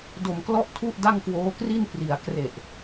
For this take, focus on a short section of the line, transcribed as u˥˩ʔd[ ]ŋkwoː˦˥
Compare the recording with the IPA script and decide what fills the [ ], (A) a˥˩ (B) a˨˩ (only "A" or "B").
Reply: A